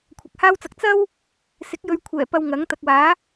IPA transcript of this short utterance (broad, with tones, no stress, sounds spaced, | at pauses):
kʷʰ ɐ˨˥ k̚ h aː˥ w t͡s ɐ˧ k̚ t͡s ɐ˥ w | s ɪ˨˥ k̚ j ɵ˨˧ ɥ kʷʰ ɛː˨˩ p ɐ˧ w ŋ ɐ˨˥ ŋ t̪ ɐ˨ k̚ w aː˨˥